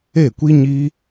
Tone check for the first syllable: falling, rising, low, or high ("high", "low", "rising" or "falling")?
falling